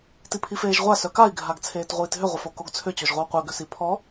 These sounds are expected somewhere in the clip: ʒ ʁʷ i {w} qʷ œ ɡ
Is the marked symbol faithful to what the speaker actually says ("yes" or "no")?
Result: yes